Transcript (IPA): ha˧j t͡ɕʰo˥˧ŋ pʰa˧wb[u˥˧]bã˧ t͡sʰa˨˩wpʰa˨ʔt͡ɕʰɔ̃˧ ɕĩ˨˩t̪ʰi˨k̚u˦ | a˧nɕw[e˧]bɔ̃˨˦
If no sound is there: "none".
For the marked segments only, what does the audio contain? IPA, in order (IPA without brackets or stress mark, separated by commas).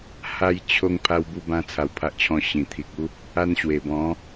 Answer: u˧, e˨˩